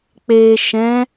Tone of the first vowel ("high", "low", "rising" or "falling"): low